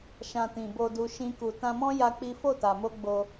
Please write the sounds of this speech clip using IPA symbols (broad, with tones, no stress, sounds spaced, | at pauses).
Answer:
ʃ ã˧ t ĩ˨ b o˧ d u˧ ʃ ĩ˦ k u˧ t ã˧ m ɔ̃˦ j a˦ k͡p i˦ f o˦˨ t a˨ m o˧ ɡ͡b o˧